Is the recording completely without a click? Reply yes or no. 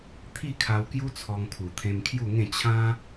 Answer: yes